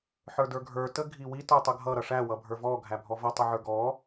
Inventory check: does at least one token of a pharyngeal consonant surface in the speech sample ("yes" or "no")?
yes